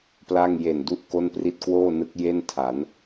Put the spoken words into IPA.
pla˥˩ŋ je˨˩ndu˦˥ʔ ko˥˩npri˥˩t̚ kwoː˥˩nɯ˦˥k̚ je˥˩ntʰa˩˦n

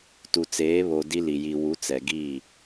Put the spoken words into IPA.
tu˨t͡seː˨˦ βo˨ di˦li˨ ji˨wu˨˦ t͡sɛ˨ɡiː˦˨

